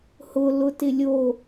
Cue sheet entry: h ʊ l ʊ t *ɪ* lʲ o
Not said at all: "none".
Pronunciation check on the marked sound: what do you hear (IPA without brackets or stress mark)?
ɪ